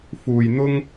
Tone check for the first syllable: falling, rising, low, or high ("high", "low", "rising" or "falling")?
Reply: low